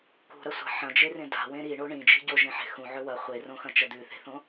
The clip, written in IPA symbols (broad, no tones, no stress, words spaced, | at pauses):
kṳɾɐsʷa̤ ħɐ̃d͡ʒerẽ da̤wẽ ɾiɳo ɳĩd͡ʒi̤ ɟoʒẽħe̤ xũʕɵ wɐ χʷerõxɐ̃t͡ʃɐ d̪ʉθe̤θõ